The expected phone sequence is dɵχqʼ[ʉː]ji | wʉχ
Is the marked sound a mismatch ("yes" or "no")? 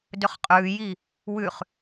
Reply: no